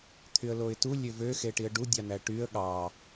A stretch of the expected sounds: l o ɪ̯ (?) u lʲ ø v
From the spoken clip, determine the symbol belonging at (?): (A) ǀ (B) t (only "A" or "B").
B